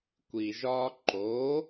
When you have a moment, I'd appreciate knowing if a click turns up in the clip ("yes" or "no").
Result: yes